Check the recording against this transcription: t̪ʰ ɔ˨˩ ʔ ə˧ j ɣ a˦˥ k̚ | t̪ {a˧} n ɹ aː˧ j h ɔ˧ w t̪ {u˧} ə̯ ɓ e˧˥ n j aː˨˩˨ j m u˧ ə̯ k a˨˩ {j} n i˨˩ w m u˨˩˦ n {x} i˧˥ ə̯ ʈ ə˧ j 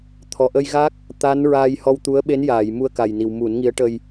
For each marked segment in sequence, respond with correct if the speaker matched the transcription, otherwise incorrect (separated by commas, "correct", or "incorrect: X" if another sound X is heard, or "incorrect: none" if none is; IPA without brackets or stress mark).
incorrect: a˧˥, incorrect: u˧˥, correct, incorrect: ŋ